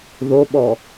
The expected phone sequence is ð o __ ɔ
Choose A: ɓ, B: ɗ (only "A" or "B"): A